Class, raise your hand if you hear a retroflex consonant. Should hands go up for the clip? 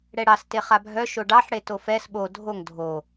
yes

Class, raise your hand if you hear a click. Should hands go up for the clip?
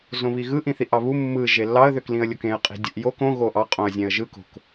no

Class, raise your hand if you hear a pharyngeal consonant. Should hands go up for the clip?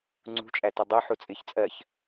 yes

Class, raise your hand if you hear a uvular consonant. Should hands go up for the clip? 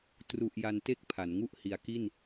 no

